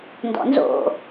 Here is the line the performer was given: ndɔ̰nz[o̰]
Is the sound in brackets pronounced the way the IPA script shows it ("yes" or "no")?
yes